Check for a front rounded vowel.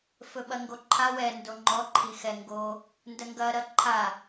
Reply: absent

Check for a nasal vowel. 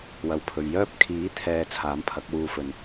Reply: absent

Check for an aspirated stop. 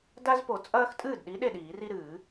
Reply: absent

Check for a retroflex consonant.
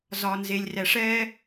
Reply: present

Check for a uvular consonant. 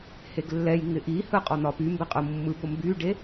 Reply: present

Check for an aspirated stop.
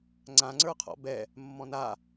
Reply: present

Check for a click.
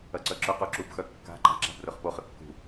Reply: present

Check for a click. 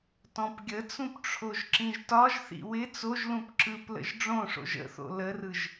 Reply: present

